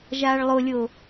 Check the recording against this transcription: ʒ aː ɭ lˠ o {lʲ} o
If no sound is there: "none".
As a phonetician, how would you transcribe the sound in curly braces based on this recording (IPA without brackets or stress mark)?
lʲ